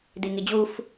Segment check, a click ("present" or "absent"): absent